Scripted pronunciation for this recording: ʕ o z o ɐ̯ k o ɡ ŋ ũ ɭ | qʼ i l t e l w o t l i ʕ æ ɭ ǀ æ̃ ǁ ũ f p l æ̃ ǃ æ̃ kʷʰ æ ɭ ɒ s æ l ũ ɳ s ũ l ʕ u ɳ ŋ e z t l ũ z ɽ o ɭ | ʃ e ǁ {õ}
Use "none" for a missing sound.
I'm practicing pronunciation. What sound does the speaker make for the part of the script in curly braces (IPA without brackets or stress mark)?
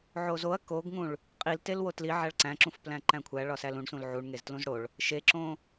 õ